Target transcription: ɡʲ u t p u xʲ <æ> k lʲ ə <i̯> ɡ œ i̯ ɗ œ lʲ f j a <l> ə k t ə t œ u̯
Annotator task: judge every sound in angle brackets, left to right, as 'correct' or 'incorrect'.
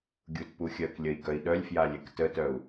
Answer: incorrect, correct, incorrect

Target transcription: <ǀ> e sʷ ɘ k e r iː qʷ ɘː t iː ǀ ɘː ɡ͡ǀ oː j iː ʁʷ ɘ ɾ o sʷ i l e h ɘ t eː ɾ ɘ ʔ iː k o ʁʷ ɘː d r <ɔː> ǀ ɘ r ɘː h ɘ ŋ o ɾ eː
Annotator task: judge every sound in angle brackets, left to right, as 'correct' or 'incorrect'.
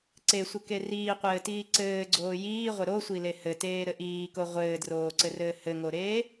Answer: correct, incorrect

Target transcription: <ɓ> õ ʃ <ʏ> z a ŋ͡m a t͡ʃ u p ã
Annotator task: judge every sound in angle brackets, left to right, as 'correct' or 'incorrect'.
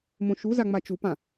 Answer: incorrect, incorrect

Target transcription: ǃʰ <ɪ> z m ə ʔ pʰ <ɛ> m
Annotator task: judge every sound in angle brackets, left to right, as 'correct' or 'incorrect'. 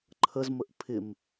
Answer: incorrect, incorrect

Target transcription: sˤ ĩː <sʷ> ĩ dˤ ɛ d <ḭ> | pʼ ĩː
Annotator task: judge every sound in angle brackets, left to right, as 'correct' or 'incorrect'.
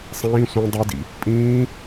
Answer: correct, correct

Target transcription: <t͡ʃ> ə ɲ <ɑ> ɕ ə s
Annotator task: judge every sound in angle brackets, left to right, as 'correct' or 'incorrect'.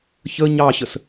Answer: incorrect, correct

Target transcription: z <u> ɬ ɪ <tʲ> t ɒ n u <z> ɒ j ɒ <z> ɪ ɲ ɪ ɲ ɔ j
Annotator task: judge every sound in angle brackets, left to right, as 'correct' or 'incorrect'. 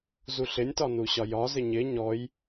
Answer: correct, incorrect, incorrect, correct

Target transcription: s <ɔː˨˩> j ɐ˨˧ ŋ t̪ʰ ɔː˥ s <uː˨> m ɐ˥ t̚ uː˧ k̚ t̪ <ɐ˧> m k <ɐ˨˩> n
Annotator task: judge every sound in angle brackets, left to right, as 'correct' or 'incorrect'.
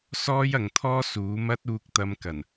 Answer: incorrect, incorrect, correct, correct

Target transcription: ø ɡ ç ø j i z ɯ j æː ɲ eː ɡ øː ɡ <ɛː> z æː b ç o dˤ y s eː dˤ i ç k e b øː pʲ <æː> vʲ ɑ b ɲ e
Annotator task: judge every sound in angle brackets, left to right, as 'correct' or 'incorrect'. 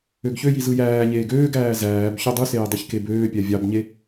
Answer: incorrect, incorrect

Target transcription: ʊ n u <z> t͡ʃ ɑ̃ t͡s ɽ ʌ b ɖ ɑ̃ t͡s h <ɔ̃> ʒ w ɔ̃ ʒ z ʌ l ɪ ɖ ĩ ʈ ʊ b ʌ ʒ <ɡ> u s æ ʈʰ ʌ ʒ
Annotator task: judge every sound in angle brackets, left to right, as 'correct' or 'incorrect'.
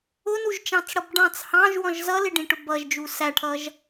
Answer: incorrect, incorrect, incorrect

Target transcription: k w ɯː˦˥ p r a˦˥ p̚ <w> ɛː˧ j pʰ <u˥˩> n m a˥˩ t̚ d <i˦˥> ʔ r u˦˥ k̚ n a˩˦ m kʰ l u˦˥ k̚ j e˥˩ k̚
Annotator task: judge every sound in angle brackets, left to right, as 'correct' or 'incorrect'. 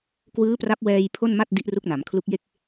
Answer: correct, incorrect, correct

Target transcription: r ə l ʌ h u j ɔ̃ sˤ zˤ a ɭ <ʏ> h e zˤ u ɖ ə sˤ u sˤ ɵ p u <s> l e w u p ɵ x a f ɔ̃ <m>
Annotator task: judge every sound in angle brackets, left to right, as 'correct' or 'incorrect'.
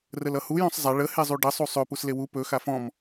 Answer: incorrect, correct, correct

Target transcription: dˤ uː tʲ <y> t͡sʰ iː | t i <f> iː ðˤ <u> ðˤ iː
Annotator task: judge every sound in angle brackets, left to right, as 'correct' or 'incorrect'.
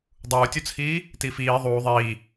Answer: incorrect, correct, incorrect

